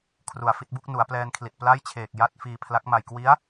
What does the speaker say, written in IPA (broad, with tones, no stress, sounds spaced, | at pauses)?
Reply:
kʰ r u˨˩ a̯ f i˥˩ t̚ b u˥˩ k̚ n u˩˦ a̯ p l ɛː˧ n kʰ l i˨˩ t̚ p l a˥˩ j t͡ɕʰ eː˨˩ k̚ j a˥˩ t̚ f iː˧ pʰ l a˦˥ k̚ m a˨˩ j k w i˦˥ a̯